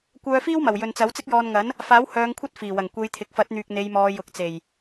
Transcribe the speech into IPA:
kʷ œː˧ f iː˥ w m ɐ˨˩ w j ɵ˨ n t͡s ɐ˨˥ w t͡s ɪ˥ k̚ j ɔː˧ n ŋ ɐ˨˥ n | f aː˨˥ w h œː˨˧ ŋ kʷʰ ɐ˥ t̚ f iː˨˩ w ɐ˨˩ ŋ kʷ e˨˧ j t̪ʰ ɪ˨ k̚ f ɐ˨˥ t̚ n̪ yː˨ k̚ n̪ e˨˧ j m ɔː˨˧ j ʊ˨ k̚ t͡s e˨˩ j

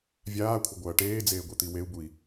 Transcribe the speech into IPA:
vʲ aː kʷʰ ɐ ɡʷ ɐː ʈ eː d͡z eː ɡʷ e t̪ i w e u̯ b u i̯

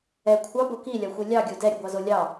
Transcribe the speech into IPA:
ɛ kʷʰ ɑ b o k i lʲ ɑ xʷ i lʲ ɑ ɡʲ o d ɛ ɾʲ ə ɡʷ ɑ z o lʲ ɑ

